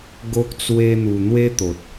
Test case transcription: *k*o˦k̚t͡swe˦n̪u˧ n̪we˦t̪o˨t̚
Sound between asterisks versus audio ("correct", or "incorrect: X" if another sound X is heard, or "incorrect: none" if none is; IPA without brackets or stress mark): incorrect: ɡ